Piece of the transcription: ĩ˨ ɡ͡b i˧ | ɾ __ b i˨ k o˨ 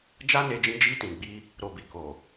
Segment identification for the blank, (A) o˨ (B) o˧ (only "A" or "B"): A